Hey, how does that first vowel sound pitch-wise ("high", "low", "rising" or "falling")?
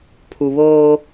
low